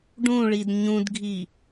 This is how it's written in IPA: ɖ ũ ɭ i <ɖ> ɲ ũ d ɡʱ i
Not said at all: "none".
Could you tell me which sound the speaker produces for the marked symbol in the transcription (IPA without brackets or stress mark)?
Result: d